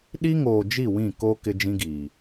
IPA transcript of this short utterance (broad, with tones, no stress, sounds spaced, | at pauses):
ɗ i˦ ŋ oː˨ d͡ʒ i˦˨ w ĩ˦˨ k o˦ k ɪ˦ d͡ʒ ĩ˦ ɡ iː˨